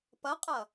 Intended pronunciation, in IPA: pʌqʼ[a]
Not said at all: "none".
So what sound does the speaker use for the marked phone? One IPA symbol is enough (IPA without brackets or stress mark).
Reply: ʌ